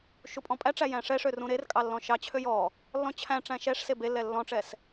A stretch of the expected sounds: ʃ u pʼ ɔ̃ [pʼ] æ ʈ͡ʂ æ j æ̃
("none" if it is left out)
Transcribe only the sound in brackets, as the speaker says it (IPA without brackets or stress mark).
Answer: pʼ